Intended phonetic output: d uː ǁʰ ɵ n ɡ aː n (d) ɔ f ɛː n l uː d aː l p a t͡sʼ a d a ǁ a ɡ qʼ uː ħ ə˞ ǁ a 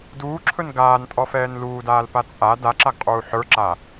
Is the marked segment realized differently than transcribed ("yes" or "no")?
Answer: yes